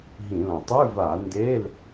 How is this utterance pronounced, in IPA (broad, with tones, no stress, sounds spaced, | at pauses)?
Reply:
ɦ ĩ˧˩˧ l ɐ̃˨˩ tˤ ʉ˧˥˧ v a˧˩˧ n d e˧˥˧ l